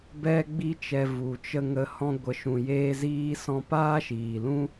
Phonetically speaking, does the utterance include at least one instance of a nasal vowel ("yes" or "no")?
yes